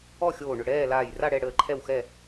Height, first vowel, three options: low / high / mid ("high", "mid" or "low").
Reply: mid